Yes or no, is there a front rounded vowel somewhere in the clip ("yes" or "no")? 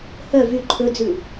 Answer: yes